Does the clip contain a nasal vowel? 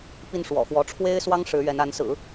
no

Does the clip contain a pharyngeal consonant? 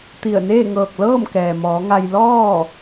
no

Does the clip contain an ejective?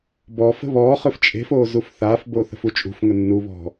yes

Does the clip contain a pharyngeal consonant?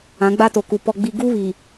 no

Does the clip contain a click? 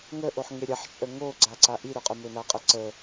yes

